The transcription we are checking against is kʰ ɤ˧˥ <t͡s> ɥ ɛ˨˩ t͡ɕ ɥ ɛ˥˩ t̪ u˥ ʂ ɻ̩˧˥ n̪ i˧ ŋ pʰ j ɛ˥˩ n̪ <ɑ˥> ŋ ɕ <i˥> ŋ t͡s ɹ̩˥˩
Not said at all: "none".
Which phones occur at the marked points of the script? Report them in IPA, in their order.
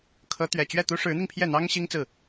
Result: t̪, ɑ˥, i˥

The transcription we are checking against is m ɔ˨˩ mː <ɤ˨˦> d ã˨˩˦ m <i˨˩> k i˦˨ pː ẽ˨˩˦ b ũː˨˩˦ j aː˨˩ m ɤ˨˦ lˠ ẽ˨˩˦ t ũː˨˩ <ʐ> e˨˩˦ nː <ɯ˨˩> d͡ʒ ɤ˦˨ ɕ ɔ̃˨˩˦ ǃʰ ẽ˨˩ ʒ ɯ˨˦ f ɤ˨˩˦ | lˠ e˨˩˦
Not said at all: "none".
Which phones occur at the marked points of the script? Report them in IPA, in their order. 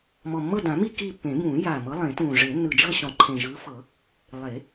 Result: ɤ˦˨, i˦˨, ʐ, ɯ˨˩

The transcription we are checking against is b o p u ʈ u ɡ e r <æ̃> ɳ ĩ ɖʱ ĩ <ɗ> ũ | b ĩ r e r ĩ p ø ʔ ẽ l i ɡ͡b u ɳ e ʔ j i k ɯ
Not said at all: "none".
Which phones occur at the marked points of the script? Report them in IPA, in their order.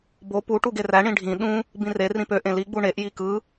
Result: æ, ɗ

